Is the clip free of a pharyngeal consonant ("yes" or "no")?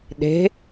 yes